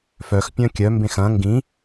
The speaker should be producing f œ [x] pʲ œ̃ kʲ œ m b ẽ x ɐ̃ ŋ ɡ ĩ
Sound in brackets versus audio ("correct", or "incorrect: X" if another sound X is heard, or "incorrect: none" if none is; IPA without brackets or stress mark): correct